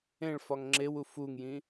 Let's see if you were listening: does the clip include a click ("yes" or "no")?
yes